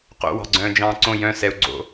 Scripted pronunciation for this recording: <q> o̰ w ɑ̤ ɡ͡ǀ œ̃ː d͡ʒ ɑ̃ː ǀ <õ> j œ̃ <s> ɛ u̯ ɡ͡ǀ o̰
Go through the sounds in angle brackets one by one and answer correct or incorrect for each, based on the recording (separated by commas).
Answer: correct, correct, correct